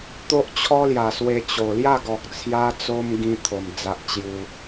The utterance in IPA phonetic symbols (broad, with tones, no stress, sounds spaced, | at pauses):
t̪ o˦ ʔ t͡ɕʰ ɔ˦ l j a˨˩ s w e˧ t͡ɕ o˨˩ l j a˥˧ ɡ ɔ˨ k̚ t͡sʰ j a˦ t͡s o˦ m ɡ ĩ˧ t̪ʰ o˨˩ m d͡z a˦ ʔ t͡ɕ j u˦